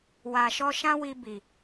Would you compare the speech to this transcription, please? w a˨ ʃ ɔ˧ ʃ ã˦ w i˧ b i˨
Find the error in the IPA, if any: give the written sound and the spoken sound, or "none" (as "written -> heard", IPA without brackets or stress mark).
none